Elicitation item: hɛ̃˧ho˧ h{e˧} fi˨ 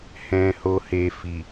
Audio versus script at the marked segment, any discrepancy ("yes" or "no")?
no